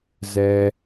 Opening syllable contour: low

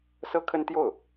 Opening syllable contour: high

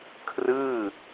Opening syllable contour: falling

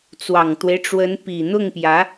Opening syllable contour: low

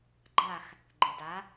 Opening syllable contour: falling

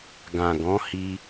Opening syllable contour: low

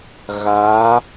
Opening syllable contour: rising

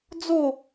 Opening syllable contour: falling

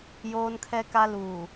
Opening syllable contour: high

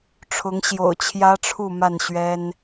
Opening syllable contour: rising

